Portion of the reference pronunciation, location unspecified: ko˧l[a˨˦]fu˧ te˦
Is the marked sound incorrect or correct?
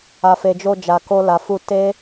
incorrect